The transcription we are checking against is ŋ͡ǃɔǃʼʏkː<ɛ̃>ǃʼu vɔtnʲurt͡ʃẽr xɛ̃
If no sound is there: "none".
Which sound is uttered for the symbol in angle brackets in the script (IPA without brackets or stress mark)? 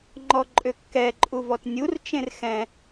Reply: ɛ